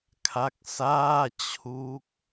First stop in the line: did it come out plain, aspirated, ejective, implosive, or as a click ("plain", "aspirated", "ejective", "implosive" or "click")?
aspirated